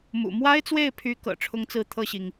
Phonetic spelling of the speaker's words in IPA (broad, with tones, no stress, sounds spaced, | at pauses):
m ṵ˨˩ m w a˥ ɪ̯ t͡s w e˥˩ ɪ̯ pʰ y˧˥ k ɤ̰˨˩ ʈ͡ʂʰ ʊ˥ ŋ t͡s ɹ̩˥˧ t̪ʰ ɤ˥˩ ɕ i˩ ŋ